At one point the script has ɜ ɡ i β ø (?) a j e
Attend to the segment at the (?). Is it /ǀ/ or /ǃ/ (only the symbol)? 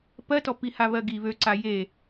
ǀ